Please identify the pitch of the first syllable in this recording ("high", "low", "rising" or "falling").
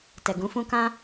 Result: low